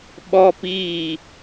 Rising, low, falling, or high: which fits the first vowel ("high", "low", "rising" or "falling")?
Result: high